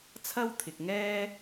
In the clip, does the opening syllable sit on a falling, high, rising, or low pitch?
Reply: high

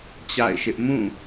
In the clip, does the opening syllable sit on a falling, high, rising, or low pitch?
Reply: falling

